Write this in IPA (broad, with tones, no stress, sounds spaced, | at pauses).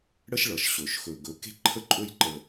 ɽ ə˦ ʃ ɭ ʌ˨ ʃ ɕ ɵ˨ ʃ x ɵ˨ ɡ ɵ˨˦ k e̤˦ ǃʰ ə˦ ǃʼ ɵ˦ j ǃ ə˨